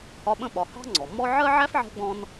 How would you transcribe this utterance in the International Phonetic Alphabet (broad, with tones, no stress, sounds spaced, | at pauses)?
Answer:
h ɒ˦ ɓ ə̃˥ ɓ ɒ˨ h ɑ̤˥ ŋ͡ǀ ɔ˩ mː ɔ˥ ʕ ɜ˥ ʕ æ˥ f ʕ ɛ̤˦ ɡ͡b ɔ̃˦ n